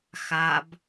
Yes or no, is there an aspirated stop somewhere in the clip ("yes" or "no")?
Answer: no